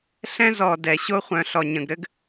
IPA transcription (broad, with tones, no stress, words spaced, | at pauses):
ɬɛ̃˦zɔ˨ dɛ˨ ɕo˦χʷœ̃˨ɬɔ˨ ɲə̃˨ɡɾɘ˥ɡ